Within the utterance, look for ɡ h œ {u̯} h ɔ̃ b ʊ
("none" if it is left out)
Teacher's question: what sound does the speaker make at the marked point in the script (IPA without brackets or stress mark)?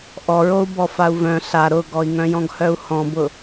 u̯